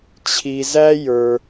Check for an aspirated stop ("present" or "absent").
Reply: present